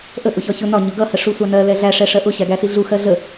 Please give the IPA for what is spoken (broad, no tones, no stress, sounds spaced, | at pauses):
ʔ ə ʔ ʊ ç ɒ ç ʊ n ɒ ɲ ʊ ɡ ʌ h ə ʂ u sʷ ɑ n ɜ l ɛ ɮ æ ʂ ɛ ʂ ɜ ʔ ʊ ɕ æ ɡ æ s i ɮ u x ɜ ɮ ə